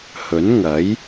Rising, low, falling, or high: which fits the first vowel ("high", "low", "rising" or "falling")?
rising